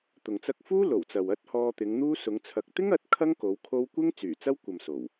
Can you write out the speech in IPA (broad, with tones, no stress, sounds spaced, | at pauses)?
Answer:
t̪ ʊ˨ ŋ t͡s ɐ˥ k̚ f uː˥ l o˨˩ w t͡s ɐ˨ w ɐ˥ t̚ h ɔː˧ t̪ ɪ˨˧ ŋ n̪ uː˥ s ʊ˨˧ ŋ t͡sʰ ɐ˨ k̚ t̪ ɪ˥ ŋ ɐ˨˥ t̚ kʰ ɐ˥ ŋ k o˨˧ w kʰ o˧ w kʷ ɪ˥ ŋ t͡s yː˨˩ t͡s ɐ˥ w kʷ ɐ˨ m s o˨˩ w